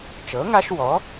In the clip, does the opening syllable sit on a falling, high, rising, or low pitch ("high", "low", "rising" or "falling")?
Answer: rising